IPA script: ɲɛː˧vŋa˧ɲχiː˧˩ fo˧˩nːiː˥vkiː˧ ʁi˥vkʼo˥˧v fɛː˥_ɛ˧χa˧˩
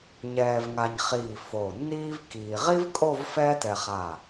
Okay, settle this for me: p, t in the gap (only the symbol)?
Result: t